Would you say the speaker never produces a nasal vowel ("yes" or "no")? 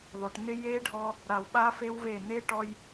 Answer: yes